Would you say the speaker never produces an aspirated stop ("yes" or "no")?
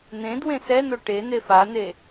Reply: yes